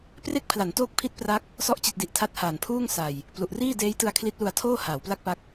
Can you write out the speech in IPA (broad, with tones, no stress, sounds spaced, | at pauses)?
p r e˥˩ k̚ pʰ l a˩˦ n t oː˥˩ k̚ pʰ i˥˩ t̚ p r a˦˥ k̚ | s ɔ˦˥ ʔ t͡ɕ i˨˩ t̚ d i˨˩ ʔ tʰ a˦˥ t̚ h aː˨˩ n pʰ uː˥˩ ŋ s a˨˩ j | p l u˨˩ ʔ r iː˥˩ d eː˦˥ j t ɯ˧ a̯ kʰ l i˦˥ t̚ l u˧ a̯ tʰ oː˥˩ h aː˩˦ w p l a˥˩ k̚ p a˦˥ k̚